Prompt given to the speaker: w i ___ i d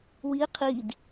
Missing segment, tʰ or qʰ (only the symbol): qʰ